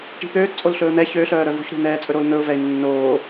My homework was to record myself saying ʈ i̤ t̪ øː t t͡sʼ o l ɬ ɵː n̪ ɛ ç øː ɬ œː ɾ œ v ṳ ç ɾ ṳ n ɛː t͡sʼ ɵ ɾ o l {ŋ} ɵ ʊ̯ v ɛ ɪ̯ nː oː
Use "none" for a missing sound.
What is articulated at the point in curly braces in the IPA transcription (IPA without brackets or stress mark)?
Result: n̪